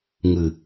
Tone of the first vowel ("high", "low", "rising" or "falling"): low